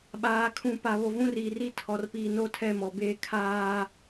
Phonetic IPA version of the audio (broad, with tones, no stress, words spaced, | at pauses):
ɓaː˨kʰũ˨pa˨ βo˨vũ˦riː˨ri˦ tʰɔ˨rpiː˨ no˦tʰɛ˦˨mɔ˦˨beː˦ kʰaː˦